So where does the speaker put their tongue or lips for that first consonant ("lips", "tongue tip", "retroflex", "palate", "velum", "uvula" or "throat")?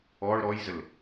retroflex